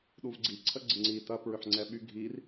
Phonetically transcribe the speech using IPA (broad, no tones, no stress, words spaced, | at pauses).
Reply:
ɗuvɡ͡ǀiǀʰə ɡ͡ǀɪŋ͡ǀi tɐ pɹʏħŋ͡ǀɛɓy ɡʱir